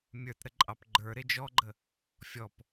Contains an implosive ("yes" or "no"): no